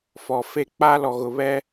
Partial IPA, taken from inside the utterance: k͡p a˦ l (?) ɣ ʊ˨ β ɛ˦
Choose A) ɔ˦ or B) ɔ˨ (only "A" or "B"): B